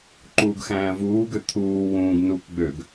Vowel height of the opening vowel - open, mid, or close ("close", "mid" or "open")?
close